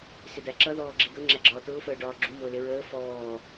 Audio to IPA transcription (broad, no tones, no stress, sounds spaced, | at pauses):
s ɪ d̪ æ ǁ ʌ ð ɔː ɡ͡ǁ i d̪ ʊ ŋ͡ǁ æ ɡ͡ǁ ɒː t̪ ʊː f əː ɖ ɒː ɡ͡ǁ u m ʊː l ɪ ɹ əː f ɔː